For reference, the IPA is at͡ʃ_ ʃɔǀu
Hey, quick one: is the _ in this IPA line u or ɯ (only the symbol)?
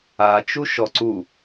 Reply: u